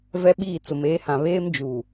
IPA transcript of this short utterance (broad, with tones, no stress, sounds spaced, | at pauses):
v ɛ˦ ɓ iː˦˨ t͡s ʊ˨ m eː˨˦ h ã˨ β eː˦ m d͡ʒ uː˨